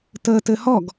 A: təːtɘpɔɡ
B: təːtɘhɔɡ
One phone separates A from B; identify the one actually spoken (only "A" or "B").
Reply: B